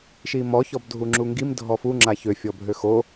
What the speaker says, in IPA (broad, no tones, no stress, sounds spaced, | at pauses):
ʃ i m ɔ ç ɔ b dʱ u ŋ͡ǁ u ŋ ɡ i m dʱ ɔ f u ŋ͡ǁ a ç ø fʲ ɔ bʱ ø x o